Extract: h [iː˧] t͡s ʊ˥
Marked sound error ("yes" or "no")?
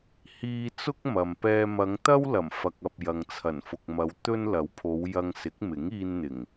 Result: no